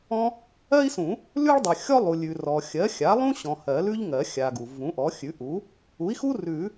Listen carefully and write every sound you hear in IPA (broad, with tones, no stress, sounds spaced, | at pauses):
ɔ̃˥ | ɜ˥ i̯ s ũ˨˩˦ | l ʉ˥ ɭ dˤ ɜ˨ xʲ ɔ˥ lˠ u˨ lʲ ʉ˨ r ɔ˨ xʲ ɜ˩˥ xʲ a˩˥ lˠ ũ˥ ɕ ɔ̃˨ h ɜ˨˩˦ l ʉ˥ ʎ ŋ ɜ˨˩˦ xʲ a˨ ɡ u˨ v ũ˩˥ ʔ ɔ˩˥ xʲ ʉ˩˥ ʔ u˩˥ | u˩˥ i̯ x u˥ r ʉ˨˩˦